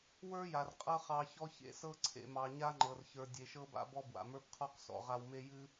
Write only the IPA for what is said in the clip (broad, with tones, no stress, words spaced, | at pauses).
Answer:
wə˞˦ja˨r qʼɤ˦χɑ˧çɔ˦ çḛ˧sɤ˦ ǀʰḛ˨mɑ˨ɲa˦ ŋ͡ǃɤ˨rçə˞˨ dʲe˨ʃɤ˧ba̰˧bɔ˧ bwa̰˨mə˞˦bqʰɔ˦q sɔ̰˨ʁa˧wme˦ jɨ˦